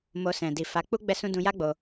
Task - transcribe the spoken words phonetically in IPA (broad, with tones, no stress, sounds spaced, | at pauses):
m o˧ s ɛ̃˨ d i˨ f a˨˦ k͡p u˦ ɡ͡b ɛ˦ s ũ˦ d ũ˧ j a˦ ɡ͡b o˧